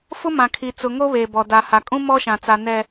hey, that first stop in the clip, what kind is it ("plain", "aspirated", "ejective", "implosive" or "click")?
aspirated